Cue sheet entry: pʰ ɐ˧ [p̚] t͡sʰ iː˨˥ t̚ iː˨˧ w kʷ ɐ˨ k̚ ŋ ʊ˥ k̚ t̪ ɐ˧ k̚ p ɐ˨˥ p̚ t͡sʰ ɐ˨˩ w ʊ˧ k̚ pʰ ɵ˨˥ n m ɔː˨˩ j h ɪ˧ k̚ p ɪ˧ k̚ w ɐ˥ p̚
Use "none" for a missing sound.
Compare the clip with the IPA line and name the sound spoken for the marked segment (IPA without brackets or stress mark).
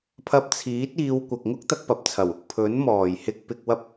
p̚